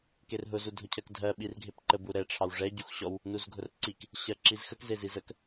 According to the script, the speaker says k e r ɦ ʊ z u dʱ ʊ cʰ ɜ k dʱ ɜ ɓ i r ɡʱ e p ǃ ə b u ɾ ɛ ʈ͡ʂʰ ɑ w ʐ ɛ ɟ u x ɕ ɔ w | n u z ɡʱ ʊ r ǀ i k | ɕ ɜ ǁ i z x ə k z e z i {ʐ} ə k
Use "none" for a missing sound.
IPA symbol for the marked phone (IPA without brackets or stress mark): z